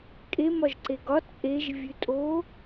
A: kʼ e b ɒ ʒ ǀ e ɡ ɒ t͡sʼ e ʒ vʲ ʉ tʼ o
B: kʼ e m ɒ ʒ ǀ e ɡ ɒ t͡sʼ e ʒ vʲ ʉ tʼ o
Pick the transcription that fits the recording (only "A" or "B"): B